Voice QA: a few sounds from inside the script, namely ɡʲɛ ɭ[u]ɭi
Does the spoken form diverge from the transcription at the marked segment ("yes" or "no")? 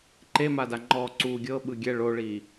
yes